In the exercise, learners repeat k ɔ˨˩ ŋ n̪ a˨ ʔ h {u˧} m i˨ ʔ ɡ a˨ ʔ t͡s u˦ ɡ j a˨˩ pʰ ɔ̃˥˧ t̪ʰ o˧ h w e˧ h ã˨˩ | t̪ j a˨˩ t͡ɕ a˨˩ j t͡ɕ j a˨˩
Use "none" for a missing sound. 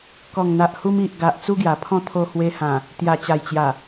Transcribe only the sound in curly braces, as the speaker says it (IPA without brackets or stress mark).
u˧